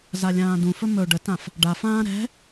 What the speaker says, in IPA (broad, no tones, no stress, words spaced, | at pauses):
zalʲãːdũfɵ mɵ ɖətãf | ɖafãː ɾɛ̤